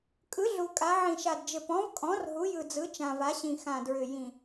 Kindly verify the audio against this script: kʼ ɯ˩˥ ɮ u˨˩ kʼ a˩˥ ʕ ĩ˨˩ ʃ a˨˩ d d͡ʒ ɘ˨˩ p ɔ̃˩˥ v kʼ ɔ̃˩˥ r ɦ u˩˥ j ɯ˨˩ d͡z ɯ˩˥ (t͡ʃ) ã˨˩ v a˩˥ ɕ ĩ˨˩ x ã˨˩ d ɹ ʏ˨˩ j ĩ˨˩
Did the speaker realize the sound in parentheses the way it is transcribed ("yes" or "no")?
yes